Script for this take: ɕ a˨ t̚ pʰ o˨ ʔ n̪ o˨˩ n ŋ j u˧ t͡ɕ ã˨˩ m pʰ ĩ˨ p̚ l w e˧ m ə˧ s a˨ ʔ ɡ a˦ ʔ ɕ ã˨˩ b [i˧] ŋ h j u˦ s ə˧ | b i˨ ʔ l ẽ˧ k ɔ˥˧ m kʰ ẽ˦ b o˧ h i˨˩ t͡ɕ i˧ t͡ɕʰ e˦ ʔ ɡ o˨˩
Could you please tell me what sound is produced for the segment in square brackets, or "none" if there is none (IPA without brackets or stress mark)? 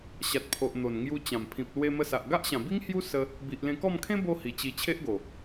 i˦